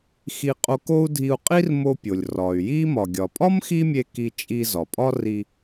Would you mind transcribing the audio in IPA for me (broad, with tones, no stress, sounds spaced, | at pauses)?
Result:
x i˧ qʼ o˧ k o˥ u̯ dʱ i˧ u̯ qʼ i˥ r m o˧ pʲ o˩ lʲ r ɒ˩ y̯ j i˥ m ɒ˩ ɡʲ ɒ˩ pʼ ɒ˥ m x i˥ mʲ e˧ k i˧ t͡ʃʼ i˧ z ɒ˩ pʼ ɒ˥ r i˧